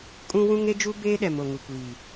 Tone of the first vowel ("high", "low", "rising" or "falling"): high